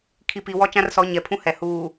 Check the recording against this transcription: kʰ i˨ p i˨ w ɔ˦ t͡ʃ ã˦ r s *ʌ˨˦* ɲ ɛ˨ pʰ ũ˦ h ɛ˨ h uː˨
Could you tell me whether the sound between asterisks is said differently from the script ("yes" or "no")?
yes